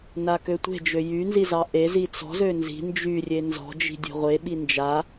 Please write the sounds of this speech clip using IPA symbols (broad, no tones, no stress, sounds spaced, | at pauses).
n a k ø tʷ e̤ d͡ʒ ø j y n z i z ɑ ʔ e z i t͡s ɔ̤ z ø n z i̤ n d͡ʒ y rʲ e n z ɔ̤ d͡ʒ i̤ dʲ e̤ ʁʷ e ɓ i n d͡ʒ a